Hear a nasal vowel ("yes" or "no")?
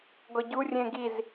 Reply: yes